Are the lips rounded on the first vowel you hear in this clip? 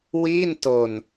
no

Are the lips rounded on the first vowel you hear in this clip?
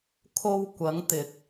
yes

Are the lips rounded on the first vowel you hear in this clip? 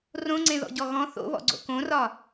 yes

